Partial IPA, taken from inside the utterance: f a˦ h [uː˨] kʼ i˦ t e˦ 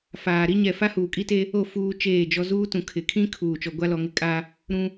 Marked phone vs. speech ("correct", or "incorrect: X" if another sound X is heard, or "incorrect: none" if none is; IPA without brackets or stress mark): correct